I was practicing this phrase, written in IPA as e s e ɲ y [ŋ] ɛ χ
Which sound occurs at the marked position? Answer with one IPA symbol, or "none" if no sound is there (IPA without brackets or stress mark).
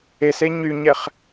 ɲ